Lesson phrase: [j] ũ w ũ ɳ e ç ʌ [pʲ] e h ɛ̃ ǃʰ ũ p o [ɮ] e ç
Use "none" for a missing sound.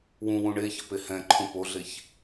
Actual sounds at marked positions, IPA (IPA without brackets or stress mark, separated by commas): w, p, ɮ